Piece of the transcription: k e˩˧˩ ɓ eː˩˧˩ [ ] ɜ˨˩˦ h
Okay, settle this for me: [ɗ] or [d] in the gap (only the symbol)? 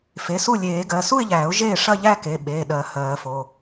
ɗ